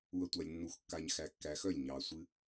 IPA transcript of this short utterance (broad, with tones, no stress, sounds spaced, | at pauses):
u˨ ɐ̯ tʷ a˨ lʲ nː u˨ x kː a˨ ɲ x æ˨ kː æ˨ x œ˦˨ lʲ ɲ ɑ˨ sʷ ɨ˦